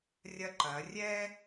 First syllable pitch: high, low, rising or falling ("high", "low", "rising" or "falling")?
high